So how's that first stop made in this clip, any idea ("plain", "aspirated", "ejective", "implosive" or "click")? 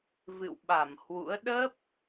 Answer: implosive